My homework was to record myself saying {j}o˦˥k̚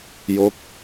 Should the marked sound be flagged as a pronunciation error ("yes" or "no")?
no